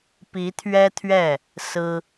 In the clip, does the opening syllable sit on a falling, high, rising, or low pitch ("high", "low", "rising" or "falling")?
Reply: rising